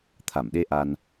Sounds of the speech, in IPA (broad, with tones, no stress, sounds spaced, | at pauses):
t̪ʰ a˧˩ m ɗ e˧ ʔ a˧ n